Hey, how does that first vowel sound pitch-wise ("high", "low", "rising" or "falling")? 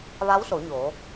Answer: rising